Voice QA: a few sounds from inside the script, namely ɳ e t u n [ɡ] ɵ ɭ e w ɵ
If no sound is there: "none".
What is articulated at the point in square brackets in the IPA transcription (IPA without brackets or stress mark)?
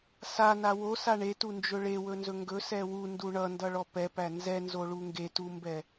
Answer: d͡ʒ